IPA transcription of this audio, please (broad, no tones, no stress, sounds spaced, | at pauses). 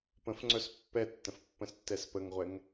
p ə̃ f ŋ͡ǀ œ s pː ɛ tː ə̃ f pː ə̃ s tː ɛ s p ə ŋ ʁʷ ɛ ŋ